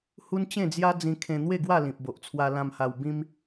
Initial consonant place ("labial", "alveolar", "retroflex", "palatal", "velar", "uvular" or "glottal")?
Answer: glottal